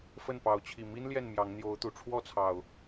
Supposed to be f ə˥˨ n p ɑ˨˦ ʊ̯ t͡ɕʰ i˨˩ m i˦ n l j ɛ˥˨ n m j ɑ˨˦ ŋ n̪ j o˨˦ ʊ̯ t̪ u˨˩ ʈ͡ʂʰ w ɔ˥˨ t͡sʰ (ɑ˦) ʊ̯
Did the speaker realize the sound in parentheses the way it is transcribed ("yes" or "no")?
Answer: no